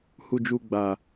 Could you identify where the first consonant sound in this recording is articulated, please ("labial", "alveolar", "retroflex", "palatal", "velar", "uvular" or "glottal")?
glottal